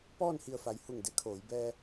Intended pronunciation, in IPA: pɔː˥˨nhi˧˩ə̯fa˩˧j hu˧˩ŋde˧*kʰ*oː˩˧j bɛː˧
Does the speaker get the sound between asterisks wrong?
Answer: no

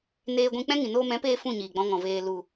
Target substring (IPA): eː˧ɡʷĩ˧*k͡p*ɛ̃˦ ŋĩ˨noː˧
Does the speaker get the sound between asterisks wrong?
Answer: no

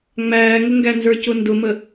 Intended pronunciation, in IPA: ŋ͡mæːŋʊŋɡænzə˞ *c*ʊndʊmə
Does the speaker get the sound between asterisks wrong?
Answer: no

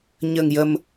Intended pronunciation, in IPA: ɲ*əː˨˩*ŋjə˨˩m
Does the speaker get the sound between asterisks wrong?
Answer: no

